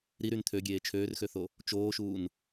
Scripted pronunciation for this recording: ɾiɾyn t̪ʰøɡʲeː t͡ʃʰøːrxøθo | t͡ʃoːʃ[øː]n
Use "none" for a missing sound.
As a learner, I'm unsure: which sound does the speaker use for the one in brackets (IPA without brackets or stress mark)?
uː